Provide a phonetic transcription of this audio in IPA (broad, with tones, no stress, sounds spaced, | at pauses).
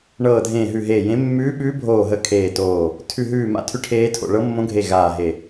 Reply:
ɳ ɤː˧˩ dʱ ẽː˧˩ ɦ ʉ˧˩ ɦ eː˧˩ j ẽ˧˥ mː ʉː˧˥ ɓ ʉː˧˥ bʱ oː˧˩ ɦ ə˧˩ kʰ eː˧˩ t oː˧˩ | tʰ ʉ˧˩ ɦ ʉː˧˩ m a̰˧˥ tʰ ʉ˧˥ ʈʰ eː˧˥ tʰ o̰˧˩ ɭ ɤ˧˥ mː õ˧˥ ɡʱ e˧˩ ɣ aː˧˩ ɦ e˧˩